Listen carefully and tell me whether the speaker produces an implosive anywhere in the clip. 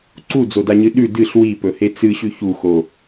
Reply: yes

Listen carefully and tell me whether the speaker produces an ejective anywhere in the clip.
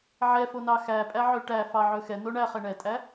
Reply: yes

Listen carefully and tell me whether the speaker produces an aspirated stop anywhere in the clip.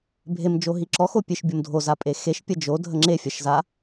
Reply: no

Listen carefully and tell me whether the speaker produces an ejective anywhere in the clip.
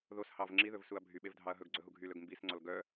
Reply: no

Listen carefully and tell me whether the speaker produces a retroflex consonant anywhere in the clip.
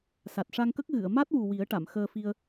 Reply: yes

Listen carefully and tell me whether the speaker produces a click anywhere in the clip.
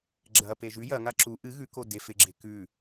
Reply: yes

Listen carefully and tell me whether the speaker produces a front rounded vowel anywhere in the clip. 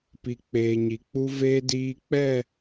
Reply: no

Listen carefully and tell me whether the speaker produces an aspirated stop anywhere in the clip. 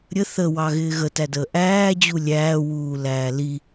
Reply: no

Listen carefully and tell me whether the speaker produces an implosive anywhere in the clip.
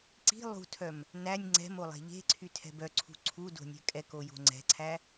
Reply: no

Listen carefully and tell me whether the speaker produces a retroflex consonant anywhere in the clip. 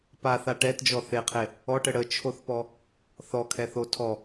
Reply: yes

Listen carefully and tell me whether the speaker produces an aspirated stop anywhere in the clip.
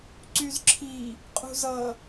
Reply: yes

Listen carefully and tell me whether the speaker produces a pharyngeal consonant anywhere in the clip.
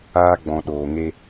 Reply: no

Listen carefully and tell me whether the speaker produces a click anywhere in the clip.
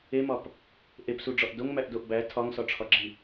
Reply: yes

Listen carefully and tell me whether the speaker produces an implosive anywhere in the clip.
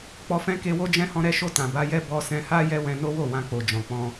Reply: no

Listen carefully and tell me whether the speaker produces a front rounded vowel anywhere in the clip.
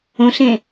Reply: no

